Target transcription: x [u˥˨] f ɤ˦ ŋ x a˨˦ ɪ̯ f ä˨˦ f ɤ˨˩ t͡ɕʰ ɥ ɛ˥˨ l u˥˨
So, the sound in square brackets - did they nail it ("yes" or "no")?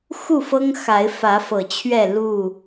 yes